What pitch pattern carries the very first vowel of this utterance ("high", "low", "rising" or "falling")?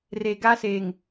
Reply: low